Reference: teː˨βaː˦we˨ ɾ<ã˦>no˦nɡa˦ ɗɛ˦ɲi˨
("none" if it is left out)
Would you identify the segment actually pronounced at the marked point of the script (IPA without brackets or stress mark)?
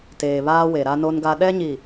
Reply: a˦